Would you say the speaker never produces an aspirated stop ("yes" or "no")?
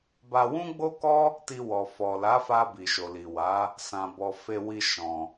yes